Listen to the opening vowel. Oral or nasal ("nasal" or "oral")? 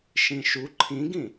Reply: nasal